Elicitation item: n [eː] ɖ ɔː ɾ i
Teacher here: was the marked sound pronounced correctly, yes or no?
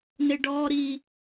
no